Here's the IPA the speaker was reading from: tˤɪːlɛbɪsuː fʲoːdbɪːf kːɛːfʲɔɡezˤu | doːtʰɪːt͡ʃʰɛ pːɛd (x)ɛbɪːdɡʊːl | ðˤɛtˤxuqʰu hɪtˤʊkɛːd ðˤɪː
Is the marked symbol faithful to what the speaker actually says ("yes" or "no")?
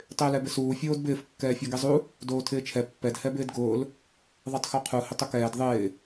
no